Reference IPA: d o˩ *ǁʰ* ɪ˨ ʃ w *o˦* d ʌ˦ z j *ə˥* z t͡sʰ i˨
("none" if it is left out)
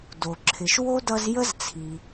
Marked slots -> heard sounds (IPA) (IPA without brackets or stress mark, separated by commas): ǁʰ, o˥, ə˥